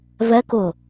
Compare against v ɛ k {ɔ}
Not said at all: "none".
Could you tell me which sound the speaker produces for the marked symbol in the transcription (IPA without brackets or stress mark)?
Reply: ʊ